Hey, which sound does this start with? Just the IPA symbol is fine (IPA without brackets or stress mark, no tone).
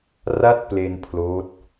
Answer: r